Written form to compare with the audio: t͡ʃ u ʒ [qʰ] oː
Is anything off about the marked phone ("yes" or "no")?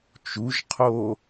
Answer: no